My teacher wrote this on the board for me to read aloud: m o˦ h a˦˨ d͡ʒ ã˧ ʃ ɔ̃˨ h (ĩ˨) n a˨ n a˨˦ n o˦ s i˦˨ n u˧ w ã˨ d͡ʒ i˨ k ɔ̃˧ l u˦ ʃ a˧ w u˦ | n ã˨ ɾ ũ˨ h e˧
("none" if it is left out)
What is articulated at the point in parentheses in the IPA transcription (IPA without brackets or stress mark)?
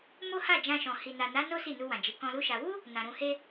i˨